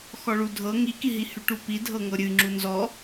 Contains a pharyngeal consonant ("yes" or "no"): no